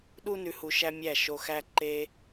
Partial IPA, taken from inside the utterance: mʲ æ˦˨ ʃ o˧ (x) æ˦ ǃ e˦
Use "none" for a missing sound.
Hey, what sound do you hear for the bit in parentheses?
x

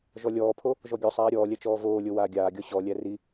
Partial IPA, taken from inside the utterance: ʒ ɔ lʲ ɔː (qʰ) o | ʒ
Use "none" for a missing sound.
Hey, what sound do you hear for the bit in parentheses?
pʰ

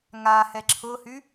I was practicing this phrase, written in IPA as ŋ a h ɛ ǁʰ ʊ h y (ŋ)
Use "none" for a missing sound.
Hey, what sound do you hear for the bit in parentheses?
none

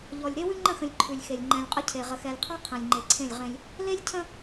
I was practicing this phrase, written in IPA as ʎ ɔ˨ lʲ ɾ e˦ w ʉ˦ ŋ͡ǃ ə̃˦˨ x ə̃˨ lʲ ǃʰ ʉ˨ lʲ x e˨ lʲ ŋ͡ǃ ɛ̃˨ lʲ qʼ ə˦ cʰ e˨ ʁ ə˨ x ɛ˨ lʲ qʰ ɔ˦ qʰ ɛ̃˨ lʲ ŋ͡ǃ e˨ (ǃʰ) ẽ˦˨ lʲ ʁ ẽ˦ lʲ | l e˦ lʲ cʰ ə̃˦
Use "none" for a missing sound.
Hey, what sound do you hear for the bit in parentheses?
ǀʰ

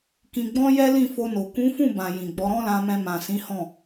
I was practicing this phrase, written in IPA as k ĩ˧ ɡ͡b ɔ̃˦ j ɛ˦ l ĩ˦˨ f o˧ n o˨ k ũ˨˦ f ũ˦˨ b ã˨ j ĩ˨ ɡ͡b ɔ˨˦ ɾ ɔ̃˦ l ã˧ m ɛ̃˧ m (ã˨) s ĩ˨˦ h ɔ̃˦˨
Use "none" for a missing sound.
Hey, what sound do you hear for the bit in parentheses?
ã˨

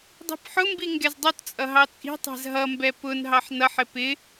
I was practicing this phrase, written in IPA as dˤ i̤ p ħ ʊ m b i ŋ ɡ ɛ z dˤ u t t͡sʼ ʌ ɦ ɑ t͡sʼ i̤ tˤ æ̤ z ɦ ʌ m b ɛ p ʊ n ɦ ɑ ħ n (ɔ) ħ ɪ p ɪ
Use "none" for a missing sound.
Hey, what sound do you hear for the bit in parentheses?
ʌ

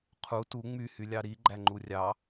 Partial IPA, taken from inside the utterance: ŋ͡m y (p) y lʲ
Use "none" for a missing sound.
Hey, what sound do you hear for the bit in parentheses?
h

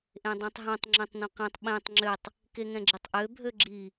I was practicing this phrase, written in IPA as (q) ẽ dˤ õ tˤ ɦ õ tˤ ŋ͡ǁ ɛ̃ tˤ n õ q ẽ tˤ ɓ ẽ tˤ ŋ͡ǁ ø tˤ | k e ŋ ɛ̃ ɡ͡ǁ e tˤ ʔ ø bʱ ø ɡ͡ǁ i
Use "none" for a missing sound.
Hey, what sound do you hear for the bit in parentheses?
ʔ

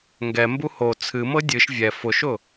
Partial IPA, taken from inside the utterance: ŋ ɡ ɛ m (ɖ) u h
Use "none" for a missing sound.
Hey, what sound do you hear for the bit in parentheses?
b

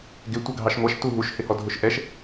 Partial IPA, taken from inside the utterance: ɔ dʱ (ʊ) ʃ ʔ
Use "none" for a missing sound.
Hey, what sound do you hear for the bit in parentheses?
ʊ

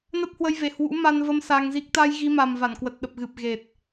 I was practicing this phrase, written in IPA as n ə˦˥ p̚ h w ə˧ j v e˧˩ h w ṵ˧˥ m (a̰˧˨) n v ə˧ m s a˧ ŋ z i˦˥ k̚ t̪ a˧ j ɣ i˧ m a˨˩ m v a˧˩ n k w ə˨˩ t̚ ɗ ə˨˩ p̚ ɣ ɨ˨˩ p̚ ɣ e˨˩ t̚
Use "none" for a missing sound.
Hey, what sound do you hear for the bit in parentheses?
a˧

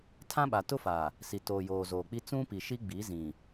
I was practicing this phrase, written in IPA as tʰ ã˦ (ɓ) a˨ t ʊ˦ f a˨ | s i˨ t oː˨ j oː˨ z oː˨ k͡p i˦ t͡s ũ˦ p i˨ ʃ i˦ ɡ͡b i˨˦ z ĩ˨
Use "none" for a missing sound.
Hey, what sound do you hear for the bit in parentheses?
ɓ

